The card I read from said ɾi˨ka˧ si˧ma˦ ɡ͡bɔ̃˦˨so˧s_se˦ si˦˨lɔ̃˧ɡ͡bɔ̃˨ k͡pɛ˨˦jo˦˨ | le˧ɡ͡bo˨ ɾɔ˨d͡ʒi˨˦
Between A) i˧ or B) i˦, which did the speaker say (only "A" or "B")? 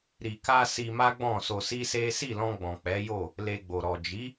B